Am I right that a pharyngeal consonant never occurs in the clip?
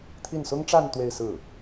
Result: yes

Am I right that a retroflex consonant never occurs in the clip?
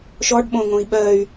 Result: no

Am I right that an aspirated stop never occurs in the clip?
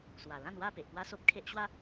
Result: no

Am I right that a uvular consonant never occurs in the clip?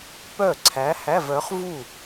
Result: no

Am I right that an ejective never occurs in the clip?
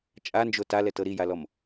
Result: no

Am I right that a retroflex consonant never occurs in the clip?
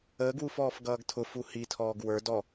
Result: yes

